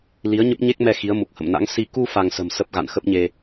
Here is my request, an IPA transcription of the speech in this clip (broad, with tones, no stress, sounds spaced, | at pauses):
l i˨˦ ə̯ ɲ ə˦˥ p̚ ɲ e˦˥ k̚ m ɛ˧ x i˨˦ ə̯ m u˨˩ k̚ h ə̰˧˨ m n a̰˧˥ ŋ s i˧ k u˧ f a˧ ŋ s ə̤˨˩ m s ə˦˥ p̚ ɣ a̰˧˨ n x ə˦˥ p̚ ɲ e˧